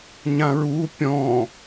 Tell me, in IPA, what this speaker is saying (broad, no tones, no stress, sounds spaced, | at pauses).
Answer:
ɲ ã ɹ u pʲ ɔ̃